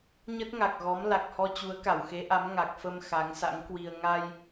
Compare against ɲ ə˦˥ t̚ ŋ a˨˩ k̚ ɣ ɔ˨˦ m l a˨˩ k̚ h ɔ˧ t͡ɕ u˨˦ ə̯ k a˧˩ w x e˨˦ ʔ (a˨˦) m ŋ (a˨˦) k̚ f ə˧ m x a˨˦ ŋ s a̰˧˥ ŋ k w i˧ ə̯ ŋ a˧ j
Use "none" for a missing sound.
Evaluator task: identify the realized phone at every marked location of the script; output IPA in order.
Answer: a˨˦, a˨˩

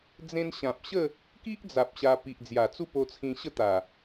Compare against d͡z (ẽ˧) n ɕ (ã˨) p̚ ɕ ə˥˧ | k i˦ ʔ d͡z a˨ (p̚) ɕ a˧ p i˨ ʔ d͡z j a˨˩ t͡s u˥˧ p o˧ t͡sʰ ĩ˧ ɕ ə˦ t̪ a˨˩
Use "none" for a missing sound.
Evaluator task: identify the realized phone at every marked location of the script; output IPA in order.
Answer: ẽ˧, ã˨, p̚

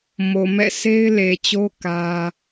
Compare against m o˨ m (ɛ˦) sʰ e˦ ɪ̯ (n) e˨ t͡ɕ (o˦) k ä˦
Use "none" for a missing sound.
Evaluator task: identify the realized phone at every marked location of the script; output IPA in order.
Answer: ɛ̰˦˨, l, o˦

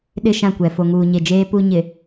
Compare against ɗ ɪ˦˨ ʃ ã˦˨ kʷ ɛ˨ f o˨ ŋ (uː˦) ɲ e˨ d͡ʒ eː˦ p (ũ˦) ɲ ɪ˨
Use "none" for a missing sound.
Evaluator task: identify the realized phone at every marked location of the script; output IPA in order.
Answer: uː˨, u˦

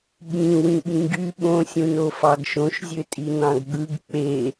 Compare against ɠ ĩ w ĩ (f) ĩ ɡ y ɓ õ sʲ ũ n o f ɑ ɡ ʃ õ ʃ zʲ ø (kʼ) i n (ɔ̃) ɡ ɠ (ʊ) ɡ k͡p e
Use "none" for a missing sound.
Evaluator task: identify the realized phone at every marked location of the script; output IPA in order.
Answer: ɓ, tʼ, ɑ̃, ɯ

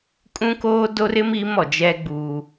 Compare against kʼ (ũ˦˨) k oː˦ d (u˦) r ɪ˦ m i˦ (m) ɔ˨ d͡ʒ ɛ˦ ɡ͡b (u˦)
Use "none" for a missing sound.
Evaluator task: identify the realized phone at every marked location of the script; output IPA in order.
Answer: ũ˦, o˦, m, uː˦

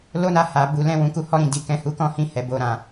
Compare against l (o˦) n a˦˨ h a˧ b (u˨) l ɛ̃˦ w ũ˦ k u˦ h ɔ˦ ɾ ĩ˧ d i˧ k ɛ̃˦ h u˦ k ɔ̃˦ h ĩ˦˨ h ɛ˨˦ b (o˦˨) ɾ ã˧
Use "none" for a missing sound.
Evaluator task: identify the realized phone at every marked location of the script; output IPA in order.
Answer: o˦, u˧, o˦˨

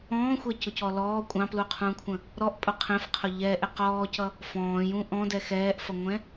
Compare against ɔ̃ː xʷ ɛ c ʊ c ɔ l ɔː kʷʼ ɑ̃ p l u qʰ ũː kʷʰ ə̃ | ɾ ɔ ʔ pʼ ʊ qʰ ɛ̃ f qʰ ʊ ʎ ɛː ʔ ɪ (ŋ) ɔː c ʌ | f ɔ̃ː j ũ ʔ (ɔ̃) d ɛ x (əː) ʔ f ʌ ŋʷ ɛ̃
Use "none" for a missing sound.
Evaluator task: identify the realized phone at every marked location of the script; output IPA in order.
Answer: q, ɔ̃, ɛː

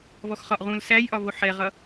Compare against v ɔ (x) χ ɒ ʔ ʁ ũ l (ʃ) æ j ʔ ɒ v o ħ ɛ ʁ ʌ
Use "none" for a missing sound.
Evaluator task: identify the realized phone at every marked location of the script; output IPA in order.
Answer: x, s

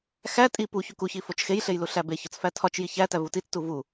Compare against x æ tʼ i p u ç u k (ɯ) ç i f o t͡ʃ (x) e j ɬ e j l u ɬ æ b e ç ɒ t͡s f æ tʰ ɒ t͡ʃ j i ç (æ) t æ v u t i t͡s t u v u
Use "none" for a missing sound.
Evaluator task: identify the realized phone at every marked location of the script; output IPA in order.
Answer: u, x, æ

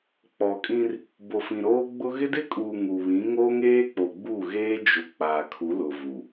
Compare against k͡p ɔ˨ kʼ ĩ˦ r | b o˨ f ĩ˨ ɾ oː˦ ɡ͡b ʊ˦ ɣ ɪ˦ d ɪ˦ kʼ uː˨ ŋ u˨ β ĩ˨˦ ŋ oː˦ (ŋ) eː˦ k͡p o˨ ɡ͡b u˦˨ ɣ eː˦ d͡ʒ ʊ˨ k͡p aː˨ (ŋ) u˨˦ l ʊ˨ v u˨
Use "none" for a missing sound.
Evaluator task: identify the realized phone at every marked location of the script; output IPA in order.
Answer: ŋ, kʰ

